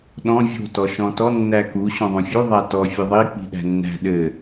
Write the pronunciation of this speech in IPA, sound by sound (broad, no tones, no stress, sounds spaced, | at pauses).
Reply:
ɗ ɔ̃ vʲ o̤ t ɔ ʃ ɔ̃ t ɔ nː æ k u ɕ õ ðˤ ũ fʲ u ðˤ æ t ɔ fʲ ɘ ðˤ i k͡p i̤ ɗ æ̤ nː æ̤ ɗ ɘ